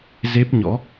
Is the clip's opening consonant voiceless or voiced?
voiced